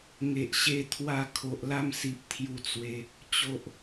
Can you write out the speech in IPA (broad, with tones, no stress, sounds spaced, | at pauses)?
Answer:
ŋ e˨ ʔ ɕ e˧ t̪ʰ w a˧ kʰ o˨ ʔ l a˥˧ m s i˨ p̚ t̪ʰ j u˧ t͡s w e˧ | t͡ɕ o˨ ʔ